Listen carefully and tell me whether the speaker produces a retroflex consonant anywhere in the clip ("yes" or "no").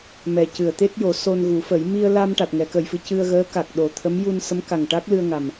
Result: yes